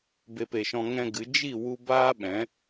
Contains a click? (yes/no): no